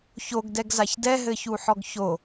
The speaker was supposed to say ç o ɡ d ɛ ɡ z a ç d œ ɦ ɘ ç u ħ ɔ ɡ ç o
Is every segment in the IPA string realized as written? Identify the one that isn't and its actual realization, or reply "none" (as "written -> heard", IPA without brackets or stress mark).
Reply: œ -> ɛ